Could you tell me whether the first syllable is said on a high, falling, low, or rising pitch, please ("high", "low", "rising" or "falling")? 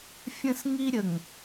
high